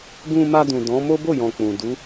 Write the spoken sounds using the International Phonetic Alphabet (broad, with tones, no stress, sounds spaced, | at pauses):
ɡ ũ˧ m a˧ d ũ˨ d ɔ̃˨˦ m o˦ b o˦˨ j ɔ̃˨ k͡p ũ˨ d u˨˦